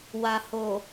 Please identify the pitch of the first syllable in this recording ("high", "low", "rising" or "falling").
low